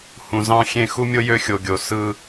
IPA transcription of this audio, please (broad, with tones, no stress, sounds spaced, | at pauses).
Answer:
h ũ˨ z ɑ̃˦ xʲ ẽ˦ x u˦ mʲ o˦ j ø˦ xʲ o˨ ɡʲ o˨ s ɯ˦